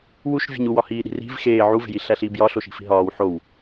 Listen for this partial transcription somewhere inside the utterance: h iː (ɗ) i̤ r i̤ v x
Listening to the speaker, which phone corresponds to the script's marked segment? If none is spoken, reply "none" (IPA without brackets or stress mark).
ɗ